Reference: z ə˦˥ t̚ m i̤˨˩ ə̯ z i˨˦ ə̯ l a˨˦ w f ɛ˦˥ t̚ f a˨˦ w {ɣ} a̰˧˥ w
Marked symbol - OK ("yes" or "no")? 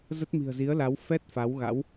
yes